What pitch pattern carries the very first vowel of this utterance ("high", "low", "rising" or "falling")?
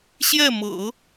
falling